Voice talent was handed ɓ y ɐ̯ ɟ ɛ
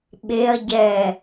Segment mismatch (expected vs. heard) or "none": y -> e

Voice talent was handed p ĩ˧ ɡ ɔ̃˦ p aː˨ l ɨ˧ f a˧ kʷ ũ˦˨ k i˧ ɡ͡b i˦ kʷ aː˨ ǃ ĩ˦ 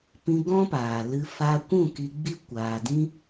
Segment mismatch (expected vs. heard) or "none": ǃ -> d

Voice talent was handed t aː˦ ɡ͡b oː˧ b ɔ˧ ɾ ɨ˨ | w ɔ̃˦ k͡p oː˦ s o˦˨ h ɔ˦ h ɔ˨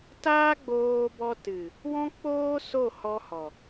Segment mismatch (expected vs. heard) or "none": ɾ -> t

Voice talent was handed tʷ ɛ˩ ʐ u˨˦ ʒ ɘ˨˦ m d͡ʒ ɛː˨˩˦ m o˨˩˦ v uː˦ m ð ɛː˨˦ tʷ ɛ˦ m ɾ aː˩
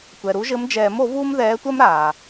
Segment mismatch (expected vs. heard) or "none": ʐ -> ɾ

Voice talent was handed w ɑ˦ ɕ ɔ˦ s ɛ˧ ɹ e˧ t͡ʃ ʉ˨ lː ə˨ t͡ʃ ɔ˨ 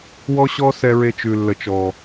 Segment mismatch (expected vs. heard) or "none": ɑ˦ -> ɔ˦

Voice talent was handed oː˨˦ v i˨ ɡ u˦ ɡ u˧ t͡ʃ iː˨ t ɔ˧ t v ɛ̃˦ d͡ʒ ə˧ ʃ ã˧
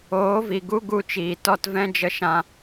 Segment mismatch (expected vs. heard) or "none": none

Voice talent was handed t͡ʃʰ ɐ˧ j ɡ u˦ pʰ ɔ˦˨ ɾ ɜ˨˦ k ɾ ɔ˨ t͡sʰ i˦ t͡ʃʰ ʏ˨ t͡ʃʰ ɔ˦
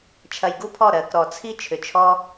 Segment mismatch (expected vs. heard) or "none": none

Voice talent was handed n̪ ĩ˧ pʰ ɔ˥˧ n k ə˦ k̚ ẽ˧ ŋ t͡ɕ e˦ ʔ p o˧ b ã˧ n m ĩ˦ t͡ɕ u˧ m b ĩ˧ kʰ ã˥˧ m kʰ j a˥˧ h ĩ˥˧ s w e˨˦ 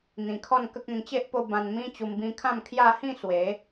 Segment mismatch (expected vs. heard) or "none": pʰ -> kʰ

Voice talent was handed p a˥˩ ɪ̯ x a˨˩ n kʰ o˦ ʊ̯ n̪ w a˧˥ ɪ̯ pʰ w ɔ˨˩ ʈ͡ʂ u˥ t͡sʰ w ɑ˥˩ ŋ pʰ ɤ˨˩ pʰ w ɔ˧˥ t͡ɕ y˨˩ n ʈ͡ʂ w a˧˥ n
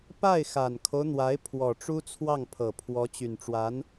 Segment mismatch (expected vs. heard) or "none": none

